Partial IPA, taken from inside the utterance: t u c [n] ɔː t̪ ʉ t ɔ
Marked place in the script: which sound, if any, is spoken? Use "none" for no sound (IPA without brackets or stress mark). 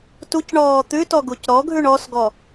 ɳ